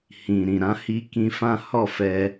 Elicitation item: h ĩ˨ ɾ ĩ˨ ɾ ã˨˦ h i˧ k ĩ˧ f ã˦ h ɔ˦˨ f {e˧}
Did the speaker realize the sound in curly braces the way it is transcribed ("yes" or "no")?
no